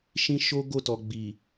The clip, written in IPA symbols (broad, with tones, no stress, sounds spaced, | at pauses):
ʃ ĩ˦ ʃ o˦ ɡ o˦˨ t ɔ˨ ɡ͡b i˨